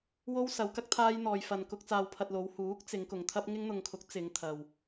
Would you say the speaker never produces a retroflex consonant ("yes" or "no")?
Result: yes